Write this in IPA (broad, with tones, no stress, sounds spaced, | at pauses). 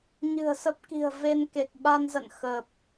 ɲ ɨ̤˨˩ ə̯ s ə˦˥ p̚ k i̤˨˩ ə̯ v e˧ n k e˨˩ k̚ ɓ a˧ n z ə̰˧˨ n x ə˨˩ p̚